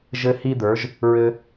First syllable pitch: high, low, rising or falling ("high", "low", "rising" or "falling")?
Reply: high